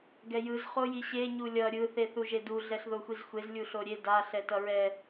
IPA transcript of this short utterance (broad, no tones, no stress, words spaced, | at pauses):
ɡɛjɯz χojiɕe ɲulʲʌ ɾʲɯ θeθuʒedu ɮɛɬðoxʷizxʷez lʲuɬoɾʲe da ɬɛtʌɹɛ